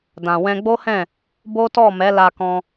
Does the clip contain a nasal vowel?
yes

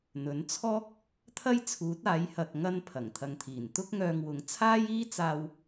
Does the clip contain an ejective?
no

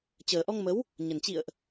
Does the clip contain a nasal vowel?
no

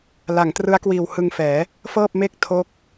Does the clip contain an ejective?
no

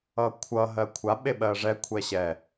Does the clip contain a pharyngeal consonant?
no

